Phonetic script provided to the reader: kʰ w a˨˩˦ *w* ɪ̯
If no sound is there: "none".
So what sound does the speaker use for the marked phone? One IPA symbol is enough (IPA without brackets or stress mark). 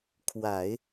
none